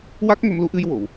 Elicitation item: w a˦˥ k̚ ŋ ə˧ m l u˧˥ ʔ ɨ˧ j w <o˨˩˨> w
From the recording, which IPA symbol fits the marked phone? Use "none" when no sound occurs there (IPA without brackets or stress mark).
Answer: o˨˩˨